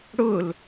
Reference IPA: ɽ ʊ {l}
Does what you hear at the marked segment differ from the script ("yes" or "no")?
no